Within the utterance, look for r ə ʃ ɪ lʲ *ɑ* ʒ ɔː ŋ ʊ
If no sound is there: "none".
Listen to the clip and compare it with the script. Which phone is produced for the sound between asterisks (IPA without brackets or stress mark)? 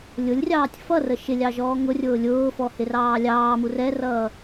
ɑ